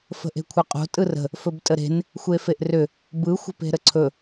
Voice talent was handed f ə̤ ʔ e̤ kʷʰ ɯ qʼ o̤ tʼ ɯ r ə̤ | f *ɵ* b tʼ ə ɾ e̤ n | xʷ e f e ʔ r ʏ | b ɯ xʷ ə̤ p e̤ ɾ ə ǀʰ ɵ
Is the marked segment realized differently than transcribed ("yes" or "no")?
no